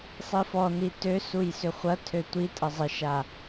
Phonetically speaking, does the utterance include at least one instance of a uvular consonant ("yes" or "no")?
yes